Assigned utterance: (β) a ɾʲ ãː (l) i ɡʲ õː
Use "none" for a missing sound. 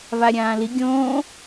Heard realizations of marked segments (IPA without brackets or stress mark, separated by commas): β, l